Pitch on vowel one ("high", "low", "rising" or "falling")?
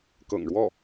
low